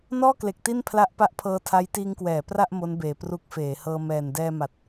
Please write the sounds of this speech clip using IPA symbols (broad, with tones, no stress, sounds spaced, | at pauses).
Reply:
n ɔː˥˩ k l e˨˩ k̚ t i˥˩ n pʰ l a˦˥ ʔ p a˦˥ ʔ pʰ ɤː˧ tʰ a˦˥ j t iː˧ ŋ k w ɛː˩˦ p r a˥˩ ʔ m o˦˥ n b eː˨˩ p r u˦˥ k̚ f eː˩˦ h ɤː˧ m ɛː˨˩ n d ɛː˧ m a˨˩ t̚